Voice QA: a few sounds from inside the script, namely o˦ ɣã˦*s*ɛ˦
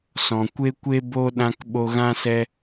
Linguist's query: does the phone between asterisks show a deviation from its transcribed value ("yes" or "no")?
no